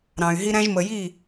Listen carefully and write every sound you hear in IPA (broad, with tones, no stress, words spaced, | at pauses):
ɾɑ̃˨y̯ɦi˧ ɾæ̃˧ʒmə˨ji˦˨